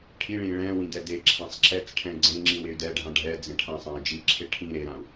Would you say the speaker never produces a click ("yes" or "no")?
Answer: no